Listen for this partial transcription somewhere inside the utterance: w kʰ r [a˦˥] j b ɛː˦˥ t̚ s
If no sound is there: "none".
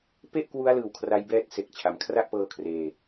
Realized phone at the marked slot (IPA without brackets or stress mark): a˦˥